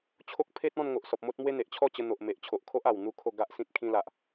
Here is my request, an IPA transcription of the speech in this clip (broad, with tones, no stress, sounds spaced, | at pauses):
t͡ɕʰ o˦ k̚ pʰ e˦ t̚ ɔ̃˥˧ n ŋ o˨ ʔ s ɔ˨ p̚ m o˦ t̚ m w e˦ n̪ e˨ ʔ t͡ɕʰ ɔ˥˧ t͡ɕ ə˧ n̪ o˨ ʔ m e˨ ʔ t͡ɕʰ o˨ ʔ kʰ o˦ ʔ a˨˩ w n̪ u˦ kʰ o˥˧ ɡ a˦ ʔ s ĩ˦ t̚ kʰ ĩ˧ l a˨ ʔ